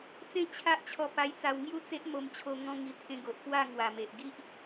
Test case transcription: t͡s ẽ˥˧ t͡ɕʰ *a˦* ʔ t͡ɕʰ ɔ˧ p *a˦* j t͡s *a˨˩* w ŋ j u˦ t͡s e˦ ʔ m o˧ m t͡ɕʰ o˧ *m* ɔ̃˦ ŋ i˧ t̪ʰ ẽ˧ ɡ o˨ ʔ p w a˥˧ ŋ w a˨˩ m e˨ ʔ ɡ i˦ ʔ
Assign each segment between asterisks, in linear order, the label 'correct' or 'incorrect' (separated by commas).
correct, incorrect, incorrect, incorrect